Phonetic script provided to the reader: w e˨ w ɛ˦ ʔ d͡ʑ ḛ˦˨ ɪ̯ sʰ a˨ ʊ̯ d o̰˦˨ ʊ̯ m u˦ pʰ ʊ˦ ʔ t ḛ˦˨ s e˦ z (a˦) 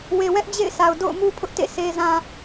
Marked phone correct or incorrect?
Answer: incorrect